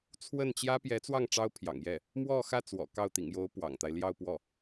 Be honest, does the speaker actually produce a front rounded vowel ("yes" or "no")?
no